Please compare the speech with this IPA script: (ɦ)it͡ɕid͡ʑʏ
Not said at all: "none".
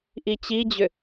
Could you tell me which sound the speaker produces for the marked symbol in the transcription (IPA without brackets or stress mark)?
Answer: ʔ